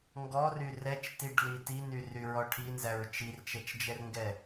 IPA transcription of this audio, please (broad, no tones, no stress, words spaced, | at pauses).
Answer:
ŋɡɔry rɛt͡ʃtiɖli tinyryɹɔ ʈʰinzæɹ t͡ʃirt͡ʃɛt͡ʃd͡ʒɛrŋɡɛ